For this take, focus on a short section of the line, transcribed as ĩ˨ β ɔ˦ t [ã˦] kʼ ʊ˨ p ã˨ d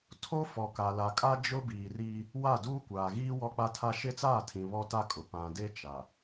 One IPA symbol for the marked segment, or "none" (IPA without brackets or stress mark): a˦